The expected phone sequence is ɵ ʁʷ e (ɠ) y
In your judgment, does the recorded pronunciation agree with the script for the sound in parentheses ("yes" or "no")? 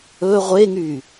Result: no